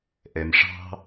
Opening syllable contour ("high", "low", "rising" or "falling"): low